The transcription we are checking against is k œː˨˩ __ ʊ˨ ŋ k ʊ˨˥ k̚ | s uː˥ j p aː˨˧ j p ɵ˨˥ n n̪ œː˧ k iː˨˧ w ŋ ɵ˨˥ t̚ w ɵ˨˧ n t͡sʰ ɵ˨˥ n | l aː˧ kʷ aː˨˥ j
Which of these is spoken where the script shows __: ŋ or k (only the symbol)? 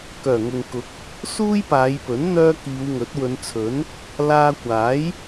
ŋ